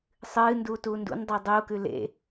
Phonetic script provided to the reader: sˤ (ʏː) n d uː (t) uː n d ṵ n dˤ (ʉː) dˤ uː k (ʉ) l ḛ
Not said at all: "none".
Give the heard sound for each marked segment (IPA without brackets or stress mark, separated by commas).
ɨː, t, ʉː, ʉ